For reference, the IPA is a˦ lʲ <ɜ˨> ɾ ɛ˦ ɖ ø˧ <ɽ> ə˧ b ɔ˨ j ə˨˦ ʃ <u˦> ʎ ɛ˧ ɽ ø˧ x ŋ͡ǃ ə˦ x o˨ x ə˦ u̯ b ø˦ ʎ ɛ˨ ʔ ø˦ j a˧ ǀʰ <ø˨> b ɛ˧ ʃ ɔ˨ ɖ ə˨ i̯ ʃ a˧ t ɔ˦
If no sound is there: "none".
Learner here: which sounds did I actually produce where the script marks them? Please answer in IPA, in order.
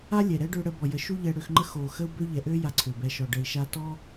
ɛ˨, ɽ, u˦, ø˨

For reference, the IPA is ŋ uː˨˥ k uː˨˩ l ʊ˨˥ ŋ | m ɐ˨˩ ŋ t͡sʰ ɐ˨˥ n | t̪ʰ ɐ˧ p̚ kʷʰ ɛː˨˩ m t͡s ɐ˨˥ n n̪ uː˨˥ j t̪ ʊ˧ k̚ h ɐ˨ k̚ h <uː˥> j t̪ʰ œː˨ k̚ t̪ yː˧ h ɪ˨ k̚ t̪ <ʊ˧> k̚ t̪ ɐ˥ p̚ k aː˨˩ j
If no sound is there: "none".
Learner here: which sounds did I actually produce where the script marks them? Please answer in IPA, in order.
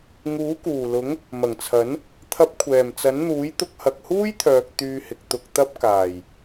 uː˥, ʊ˧

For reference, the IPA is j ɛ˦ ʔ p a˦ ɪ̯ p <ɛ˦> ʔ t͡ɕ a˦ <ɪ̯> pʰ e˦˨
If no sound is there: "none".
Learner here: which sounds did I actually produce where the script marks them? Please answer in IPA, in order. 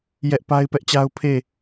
ɛ˦, ʊ̯

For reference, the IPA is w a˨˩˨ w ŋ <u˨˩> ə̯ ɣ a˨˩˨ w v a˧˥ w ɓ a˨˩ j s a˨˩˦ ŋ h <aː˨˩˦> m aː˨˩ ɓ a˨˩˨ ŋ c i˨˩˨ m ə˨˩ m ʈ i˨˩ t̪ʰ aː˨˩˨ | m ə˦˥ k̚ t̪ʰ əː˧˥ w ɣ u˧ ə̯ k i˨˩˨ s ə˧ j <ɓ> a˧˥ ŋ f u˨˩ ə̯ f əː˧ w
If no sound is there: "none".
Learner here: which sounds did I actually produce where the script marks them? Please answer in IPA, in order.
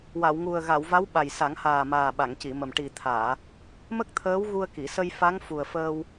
u˨˩, aː˨˩, f

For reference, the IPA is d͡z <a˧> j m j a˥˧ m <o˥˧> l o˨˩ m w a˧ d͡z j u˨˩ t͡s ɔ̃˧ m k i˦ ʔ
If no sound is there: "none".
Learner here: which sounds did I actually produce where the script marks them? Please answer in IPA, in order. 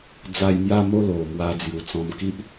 a˧, o˥˧

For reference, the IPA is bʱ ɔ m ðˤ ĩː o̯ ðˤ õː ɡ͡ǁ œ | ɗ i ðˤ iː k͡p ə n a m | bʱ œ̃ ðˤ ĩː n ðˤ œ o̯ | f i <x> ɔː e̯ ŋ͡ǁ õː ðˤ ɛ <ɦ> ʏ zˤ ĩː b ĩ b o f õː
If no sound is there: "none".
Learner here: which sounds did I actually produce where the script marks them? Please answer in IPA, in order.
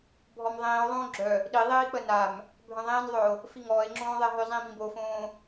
ŋ, ɦ

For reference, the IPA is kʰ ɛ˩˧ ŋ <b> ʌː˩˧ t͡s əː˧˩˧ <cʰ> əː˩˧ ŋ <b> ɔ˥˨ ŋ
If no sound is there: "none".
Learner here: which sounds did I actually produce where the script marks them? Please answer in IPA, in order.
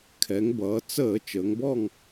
b, t͡ʃ, b

